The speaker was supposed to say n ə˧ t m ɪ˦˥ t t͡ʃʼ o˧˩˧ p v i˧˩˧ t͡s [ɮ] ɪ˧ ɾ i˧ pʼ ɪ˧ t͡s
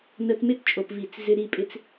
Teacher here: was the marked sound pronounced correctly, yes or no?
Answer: no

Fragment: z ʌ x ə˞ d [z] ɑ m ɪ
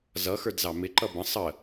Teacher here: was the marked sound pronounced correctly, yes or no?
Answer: yes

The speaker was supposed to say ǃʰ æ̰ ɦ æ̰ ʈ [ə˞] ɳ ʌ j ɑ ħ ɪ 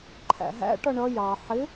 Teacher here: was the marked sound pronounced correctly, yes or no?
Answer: no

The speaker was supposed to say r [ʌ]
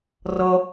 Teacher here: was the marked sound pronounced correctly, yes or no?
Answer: yes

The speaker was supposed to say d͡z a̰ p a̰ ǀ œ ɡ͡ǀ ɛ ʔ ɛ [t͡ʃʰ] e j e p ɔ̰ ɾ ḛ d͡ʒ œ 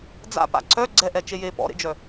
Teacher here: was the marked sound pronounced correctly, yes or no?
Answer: no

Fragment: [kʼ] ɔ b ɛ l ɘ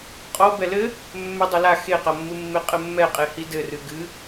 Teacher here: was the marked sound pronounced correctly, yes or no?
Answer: no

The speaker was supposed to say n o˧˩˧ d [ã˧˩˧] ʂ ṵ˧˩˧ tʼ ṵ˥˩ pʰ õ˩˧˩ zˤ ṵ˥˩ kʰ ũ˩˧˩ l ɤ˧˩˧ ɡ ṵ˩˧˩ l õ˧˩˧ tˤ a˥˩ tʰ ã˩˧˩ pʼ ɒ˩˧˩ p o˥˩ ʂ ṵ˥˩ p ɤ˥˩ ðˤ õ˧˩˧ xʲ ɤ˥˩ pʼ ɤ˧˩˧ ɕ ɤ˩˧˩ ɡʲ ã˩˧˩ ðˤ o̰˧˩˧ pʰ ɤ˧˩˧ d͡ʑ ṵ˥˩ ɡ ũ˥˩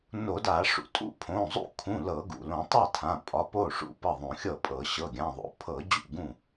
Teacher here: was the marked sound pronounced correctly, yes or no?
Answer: no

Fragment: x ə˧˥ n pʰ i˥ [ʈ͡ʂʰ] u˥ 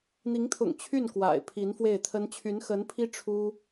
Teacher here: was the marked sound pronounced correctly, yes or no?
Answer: yes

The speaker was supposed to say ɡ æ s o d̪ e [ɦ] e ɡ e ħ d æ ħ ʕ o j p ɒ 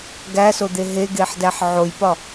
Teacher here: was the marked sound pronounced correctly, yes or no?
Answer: yes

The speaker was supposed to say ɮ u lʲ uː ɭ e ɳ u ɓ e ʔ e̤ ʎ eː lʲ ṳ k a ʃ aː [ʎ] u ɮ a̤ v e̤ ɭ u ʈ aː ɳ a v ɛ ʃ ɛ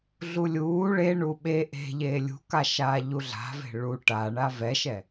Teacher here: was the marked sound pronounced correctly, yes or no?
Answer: yes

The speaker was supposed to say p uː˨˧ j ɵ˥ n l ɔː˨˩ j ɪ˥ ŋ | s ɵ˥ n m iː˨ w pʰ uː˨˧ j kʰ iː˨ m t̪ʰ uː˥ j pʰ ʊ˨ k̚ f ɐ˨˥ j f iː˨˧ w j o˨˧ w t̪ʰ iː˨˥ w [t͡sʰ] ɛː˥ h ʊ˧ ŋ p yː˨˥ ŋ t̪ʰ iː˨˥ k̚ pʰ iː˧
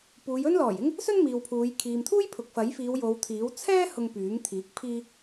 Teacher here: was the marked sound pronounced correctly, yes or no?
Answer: yes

